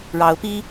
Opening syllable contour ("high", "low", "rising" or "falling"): rising